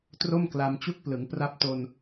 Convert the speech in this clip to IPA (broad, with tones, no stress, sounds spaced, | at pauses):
t r o˥˩ m k l a˧ m t͡ɕ u˦˥ k̚ p l ɯ˩˦ ŋ p r a˦˥ p̚ t o˧ n